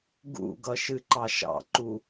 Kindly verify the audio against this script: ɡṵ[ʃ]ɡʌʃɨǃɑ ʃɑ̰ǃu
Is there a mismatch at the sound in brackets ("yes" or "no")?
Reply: yes